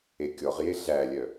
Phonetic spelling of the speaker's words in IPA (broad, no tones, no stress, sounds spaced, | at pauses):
e kʲ ɔ ʁ j e ɮ æ lʲ œ